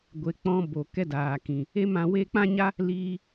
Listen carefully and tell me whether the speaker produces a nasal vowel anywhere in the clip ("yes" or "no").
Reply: yes